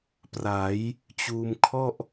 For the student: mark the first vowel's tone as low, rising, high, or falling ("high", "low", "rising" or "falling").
rising